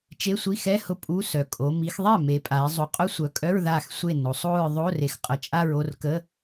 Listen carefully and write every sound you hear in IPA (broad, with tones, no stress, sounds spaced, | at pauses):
t͡ʃ e˧˥˧ sʷ i˧˥˧ x ɛ˧˥˧ h ʊ˥˩ pʼ u˧˥˧ s œ˨ kʼ o˨˦ m i˨˦ x ðˤ ɛ˥˩ m e˨˦ pʼ a˨˦ ɪ̯ zˤ u˨ qʼ ʊ˦˥ sʷ œ˨ kʼ œ˧˥˧ ɹ ð a˥˩ x sʷ e˥˩ n o˨˦ sˤ o˥˧ ɹ ðˤ o˧˥˧ r e˨˦ x qʼ ə˨˦ t͡ʃʼ a˥˧ ɹ o˥˧ r k ə˧˥˧